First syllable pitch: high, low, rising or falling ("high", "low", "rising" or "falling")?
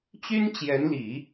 high